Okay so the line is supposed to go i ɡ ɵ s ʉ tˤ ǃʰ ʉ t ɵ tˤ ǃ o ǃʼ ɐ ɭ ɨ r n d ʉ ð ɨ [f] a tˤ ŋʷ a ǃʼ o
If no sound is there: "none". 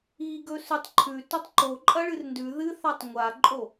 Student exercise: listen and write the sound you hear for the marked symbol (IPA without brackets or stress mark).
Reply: θ